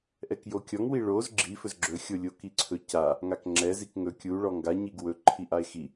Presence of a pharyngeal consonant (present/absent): absent